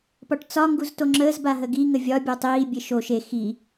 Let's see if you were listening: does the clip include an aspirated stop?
no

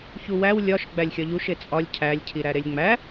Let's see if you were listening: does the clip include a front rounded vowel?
no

